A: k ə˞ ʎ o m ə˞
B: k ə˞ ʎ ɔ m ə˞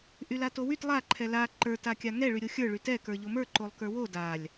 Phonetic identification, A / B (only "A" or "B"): A